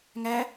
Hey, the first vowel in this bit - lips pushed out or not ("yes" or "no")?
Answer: no